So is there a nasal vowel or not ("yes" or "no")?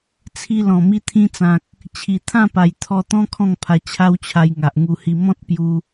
yes